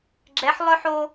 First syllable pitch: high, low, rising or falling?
rising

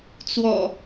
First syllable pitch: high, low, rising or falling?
low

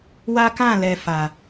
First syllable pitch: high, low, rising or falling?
high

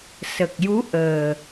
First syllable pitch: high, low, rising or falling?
low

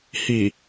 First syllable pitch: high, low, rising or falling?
low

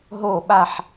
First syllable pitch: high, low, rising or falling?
falling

